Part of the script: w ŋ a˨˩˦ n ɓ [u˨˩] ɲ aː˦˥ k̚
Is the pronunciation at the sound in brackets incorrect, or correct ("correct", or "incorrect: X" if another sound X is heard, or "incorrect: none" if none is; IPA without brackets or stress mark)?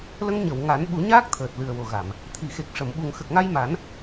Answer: incorrect: u˨˩˦